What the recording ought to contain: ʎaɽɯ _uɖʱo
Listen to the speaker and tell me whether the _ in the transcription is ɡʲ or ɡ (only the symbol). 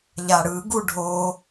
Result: ɡ